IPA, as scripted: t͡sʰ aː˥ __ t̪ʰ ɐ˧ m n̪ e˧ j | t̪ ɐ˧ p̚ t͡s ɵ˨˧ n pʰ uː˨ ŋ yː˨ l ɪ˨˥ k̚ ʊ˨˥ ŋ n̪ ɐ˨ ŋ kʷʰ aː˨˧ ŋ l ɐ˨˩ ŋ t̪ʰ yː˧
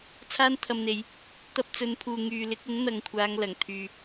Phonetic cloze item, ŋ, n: n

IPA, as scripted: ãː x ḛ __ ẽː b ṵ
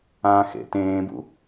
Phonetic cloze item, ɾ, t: t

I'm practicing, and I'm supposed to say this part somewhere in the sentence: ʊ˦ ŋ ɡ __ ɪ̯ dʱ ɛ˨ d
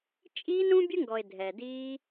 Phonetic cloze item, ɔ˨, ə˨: ɔ˨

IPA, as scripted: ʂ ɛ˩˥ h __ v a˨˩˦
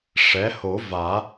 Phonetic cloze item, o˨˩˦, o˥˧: o˨˩˦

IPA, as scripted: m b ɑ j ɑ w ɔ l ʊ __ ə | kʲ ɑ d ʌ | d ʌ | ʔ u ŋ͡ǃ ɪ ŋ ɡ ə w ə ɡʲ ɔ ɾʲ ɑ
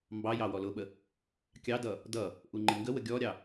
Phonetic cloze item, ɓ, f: ɓ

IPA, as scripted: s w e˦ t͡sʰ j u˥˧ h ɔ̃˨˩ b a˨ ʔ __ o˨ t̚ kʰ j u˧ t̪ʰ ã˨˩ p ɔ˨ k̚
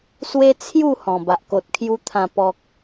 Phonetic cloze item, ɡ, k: k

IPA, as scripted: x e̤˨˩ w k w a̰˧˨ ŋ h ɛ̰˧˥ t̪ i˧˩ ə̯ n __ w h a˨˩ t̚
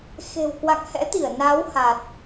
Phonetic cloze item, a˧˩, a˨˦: a˨˦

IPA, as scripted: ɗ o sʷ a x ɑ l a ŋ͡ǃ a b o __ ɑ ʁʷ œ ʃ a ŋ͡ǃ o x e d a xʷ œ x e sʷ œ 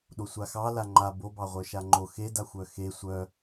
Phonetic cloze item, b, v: b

